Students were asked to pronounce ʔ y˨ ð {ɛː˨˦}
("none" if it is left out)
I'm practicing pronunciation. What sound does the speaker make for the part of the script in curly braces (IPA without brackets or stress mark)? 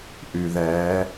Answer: ɛː˨˦